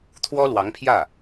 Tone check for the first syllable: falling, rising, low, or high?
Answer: high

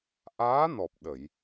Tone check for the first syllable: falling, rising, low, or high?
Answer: rising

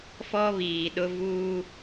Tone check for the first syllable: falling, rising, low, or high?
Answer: high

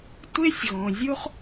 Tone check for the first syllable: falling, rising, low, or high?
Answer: high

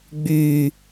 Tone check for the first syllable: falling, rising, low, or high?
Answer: low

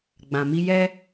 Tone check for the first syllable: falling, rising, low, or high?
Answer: low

